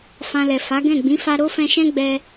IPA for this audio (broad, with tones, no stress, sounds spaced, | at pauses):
f ã˧ l ɛ˨ f a˨˦ ɡ ɛ̃˦˨ ɡ͡b ĩ˨˦ f a˦ ɾ o˦ f ɛ̃˧ ʃ ɛ̃˦ ɡ͡b ɛ˧